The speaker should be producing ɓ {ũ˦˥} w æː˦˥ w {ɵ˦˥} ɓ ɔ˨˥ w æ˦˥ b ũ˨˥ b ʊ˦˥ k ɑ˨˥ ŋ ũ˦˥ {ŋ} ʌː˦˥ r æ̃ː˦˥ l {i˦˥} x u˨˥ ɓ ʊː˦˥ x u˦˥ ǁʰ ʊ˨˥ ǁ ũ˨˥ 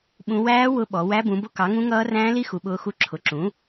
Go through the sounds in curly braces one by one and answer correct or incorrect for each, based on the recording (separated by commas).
correct, incorrect, correct, correct